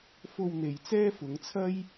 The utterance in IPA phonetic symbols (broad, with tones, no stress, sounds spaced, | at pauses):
f o˧ w n̪ e˨ j t͡s ɛː˥ f ʊ˨˧ ŋ t͡sʰ ɐ˥ j